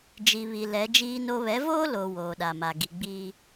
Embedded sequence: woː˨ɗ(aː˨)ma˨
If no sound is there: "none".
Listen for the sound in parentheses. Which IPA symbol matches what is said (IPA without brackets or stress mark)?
a˨